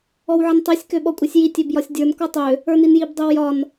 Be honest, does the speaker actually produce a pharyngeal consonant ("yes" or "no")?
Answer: yes